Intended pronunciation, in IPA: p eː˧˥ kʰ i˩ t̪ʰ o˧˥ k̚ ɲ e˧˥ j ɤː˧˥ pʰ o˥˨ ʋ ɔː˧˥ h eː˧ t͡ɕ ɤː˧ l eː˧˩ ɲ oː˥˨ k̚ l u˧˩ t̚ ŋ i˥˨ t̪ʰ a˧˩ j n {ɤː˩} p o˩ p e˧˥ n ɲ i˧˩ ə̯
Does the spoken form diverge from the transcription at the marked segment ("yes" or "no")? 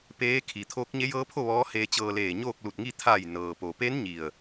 no